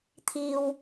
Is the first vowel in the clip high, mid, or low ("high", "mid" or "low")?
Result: high